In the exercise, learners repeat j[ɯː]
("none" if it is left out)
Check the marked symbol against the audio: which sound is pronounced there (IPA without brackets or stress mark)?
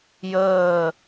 əː